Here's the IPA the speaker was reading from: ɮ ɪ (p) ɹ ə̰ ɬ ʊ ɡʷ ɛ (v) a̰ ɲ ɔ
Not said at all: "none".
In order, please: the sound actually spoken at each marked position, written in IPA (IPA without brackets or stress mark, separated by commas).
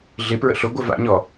p, v